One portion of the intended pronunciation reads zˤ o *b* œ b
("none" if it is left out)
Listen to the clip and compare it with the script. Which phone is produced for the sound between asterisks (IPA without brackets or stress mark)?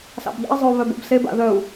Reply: β